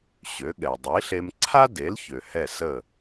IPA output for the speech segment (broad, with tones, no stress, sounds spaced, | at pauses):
ɕ ø˩˥ ɠ ɛ˩ dˤ i˩˥ ɬ e˧ m ǀʰ a˥ d e˩˥ l ç ø˩ h ɛ˥˩ s ə˥˩